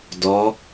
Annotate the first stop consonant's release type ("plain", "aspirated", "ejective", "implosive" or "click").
plain